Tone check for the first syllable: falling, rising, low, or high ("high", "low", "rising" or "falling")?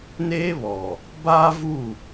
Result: high